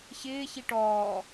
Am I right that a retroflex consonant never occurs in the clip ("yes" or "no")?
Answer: no